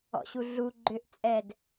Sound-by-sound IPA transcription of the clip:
ɔ̰ ɕ u ɮ u ɡ͡ǃ ʏ ʔ t͡sʼ ɛ d

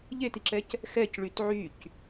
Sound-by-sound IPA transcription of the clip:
ʎ e t i ǁ ɛ c | x ɛ c ɭ y t ʕ y c

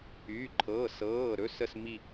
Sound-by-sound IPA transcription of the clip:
yː˩˧˩ ǃʰ ɤː˩˧˩ s ɤː˩˧˩ ɾ ɵ˩˧˩ s ə˦˨ s m i˦˨

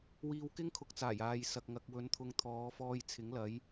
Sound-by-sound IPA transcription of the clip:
w iː˧ w k ɪ˥ ŋ kʰ ʊ˨˥ k̚ t͡s aː˨˩ j aː˨ j s ɐ˨ k̚ ŋ ɐ˧ k̚ w ɵ˨˧ n t̪ʰ ʊ˧ ŋ t̪ʰ ɔː˨˧ f ɔː˧ j t͡sʰ ɪ˨˥ ŋ l ɐ˨˥ j

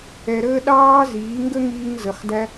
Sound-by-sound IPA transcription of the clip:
ɛ˨ ɾ əː˧ ɗ ɑː˧ z iː˨˦ ŋ ɡ ə˦ ŋ iː˧ ŋ z ə˨˦ χ d æ˧

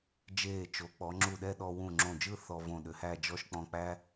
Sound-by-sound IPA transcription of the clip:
d͡ʒ eː˧˩ t͡ʃ o˩˧ k͡p ɔ˩˧ ŋ͡ǁ u˧˩ ɗ ɛ˥˧ ɗ ɔ˧ w ũ˧˩ ŋ͡ǁ õ˧˩ d͡ʒ ɯ˥˧ θ ɔ˧ v õ˧˩ ɗ ʏ˩˧ h æ˥˧ d͡ʒ ɔ˥ ʃ k͡p ɔ̃˧ k͡p æ˥

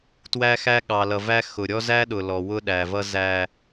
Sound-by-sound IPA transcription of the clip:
t w æ˦ x æ˦ ɠ ɑ˨ l ʌ˨ v æ˦ x ʊ˨ ɾʲ ɔ˦ z æ˦ ɗ ʊ˨ l ɔ˨ w ʊ˦ ɗ æ˨ v ʌ˦ z æ˦

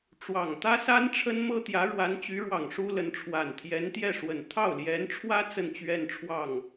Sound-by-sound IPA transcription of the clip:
ʈ͡ʂ w ɑ˨˩ ŋ t̪ ä˥ s a˥ n ʈ͡ʂʰ ə˥ n m ɤ˥ t̪ j ä˧˥ ɻ w a˧˥ n t͡ɕ y˧˥ ɻ w ɑ˨˩ ŋ ʂ u˥ l ə˧˥ n ʈ͡ʂʰ w a˨˩ n t̪ʰ j ɛ˧˥ n t̪ j ɛ˥˩ ʂ w ə˨˩ n t̪ʰ ɑ˥˩ ʊ̯ l j ɛ˧˥ n ʈ͡ʂʰ w ä˥ t͡s ə˥˧ n t͡ɕ ɥ ɛ˥˧ n ʈ͡ʂʰ w ɑ˥˩ ŋ

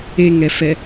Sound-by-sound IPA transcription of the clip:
e ŋ ɛ f ɛ

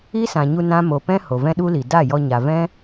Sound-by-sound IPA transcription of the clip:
i˦ s ã˨ ɲ u˧ n ã˦ m o˨ p ɛ̃˦ h o˨ v ɛ̃˦ ɗ u˦ l i˨ d a˦˨ j ɔ˧ ɲ a˨ v ɛ̃˦

